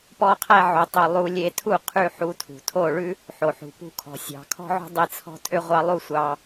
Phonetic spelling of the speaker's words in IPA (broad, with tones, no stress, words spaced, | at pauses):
pɔ˦qʰæ˦ ʕo˧tˤɵ˧ lˠu˧lʲe˧tʰu˦˨ qʰʉ˧ ħu˧tʰṳ˨ tʰo˦˨ɭʉ˦ | ħo˨ħṳ˨pṳ˦˨kʰɔ̤˨ sʲɑ̤˨kʰɔ̤˦ʕo̤˦ dˤe˦t͡sʰɔ̤˦tʰø˦ʁʷɑ˦ lˠu˦sʷɑ˧